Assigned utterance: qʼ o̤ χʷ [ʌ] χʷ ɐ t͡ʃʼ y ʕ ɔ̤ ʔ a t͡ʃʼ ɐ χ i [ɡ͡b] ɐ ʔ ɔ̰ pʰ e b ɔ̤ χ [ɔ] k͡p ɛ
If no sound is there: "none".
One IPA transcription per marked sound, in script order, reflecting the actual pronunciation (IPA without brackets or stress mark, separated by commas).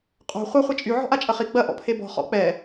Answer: ʌ, ɡ͡b, ɔ̰